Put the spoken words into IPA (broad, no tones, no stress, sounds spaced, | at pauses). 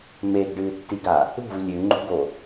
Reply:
m e ɡ ɖ ɨː tː i ɡ a | ṳ v lʲ ʉ ŋ͡ǃ ṳ ɡ o